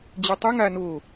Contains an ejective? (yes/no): no